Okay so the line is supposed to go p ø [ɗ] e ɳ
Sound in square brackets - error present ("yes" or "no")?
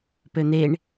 yes